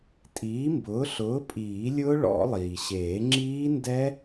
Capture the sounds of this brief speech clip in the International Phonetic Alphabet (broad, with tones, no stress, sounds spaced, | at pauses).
tʼ iː˨˥ m b ʊː˨˥ ɬ ʊː˨˥ pʼ iː˨˩˦ lʲ ʊː˦˥ ɭ ɔ̰˨˩˦ lˠ iː˩ ɕ eː˨˩˦ ŋ͡ǁ iː˦˥ n d ɛ˦˥